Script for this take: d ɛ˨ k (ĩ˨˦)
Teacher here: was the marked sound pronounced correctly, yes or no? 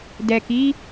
no